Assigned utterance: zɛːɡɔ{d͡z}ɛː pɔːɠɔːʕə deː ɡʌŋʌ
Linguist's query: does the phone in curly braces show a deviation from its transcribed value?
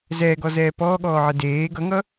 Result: yes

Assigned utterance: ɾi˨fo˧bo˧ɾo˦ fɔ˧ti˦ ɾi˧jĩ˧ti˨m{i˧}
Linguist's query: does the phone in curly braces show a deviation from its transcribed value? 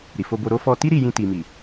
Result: yes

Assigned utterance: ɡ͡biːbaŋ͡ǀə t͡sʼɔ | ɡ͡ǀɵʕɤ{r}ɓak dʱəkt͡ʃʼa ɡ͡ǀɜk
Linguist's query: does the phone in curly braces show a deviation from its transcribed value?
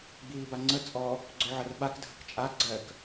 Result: no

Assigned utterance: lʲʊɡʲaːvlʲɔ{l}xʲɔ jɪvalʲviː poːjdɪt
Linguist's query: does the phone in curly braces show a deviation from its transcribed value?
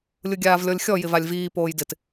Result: yes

